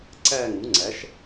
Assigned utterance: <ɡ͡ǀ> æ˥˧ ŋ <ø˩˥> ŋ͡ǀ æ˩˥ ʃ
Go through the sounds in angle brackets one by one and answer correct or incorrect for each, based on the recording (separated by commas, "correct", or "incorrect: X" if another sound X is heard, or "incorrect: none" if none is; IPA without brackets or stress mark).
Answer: incorrect: ǀ, incorrect: u˩˥